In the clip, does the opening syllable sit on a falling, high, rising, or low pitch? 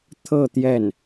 falling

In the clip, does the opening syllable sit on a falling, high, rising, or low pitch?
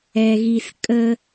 low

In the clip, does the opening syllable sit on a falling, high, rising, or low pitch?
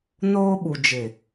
high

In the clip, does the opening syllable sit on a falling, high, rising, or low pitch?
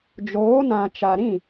rising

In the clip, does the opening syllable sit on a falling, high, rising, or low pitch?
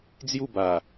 falling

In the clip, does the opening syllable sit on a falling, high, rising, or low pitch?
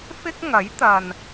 high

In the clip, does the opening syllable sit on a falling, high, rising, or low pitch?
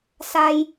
high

